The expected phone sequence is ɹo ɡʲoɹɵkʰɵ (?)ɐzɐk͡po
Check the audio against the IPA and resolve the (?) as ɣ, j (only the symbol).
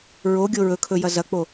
j